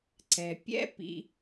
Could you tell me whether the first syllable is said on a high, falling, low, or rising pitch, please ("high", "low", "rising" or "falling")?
low